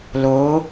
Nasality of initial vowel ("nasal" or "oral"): oral